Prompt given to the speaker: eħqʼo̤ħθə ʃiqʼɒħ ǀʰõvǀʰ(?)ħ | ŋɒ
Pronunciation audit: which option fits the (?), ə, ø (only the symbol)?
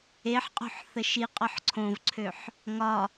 ø